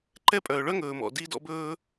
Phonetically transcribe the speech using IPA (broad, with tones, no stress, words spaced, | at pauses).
ǃɛ˦pʼœː˩ɭœ˦ŋɵː˩ mɔ̰˩di˦dɔ̰˦bɵː˦